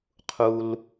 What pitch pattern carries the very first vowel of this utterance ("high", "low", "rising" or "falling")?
low